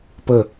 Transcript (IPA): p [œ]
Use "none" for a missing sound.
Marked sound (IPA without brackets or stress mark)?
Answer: ə